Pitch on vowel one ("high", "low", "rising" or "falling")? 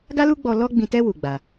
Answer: high